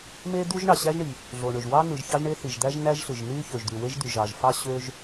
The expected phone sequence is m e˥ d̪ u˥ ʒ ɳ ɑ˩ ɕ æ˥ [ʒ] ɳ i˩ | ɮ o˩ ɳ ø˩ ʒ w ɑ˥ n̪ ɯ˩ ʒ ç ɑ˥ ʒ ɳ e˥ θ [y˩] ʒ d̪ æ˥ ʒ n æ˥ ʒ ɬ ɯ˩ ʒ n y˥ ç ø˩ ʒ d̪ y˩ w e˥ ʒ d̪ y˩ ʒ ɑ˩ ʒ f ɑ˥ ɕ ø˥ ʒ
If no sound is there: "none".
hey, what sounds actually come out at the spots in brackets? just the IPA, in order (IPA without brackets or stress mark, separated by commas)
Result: ʒ, i˩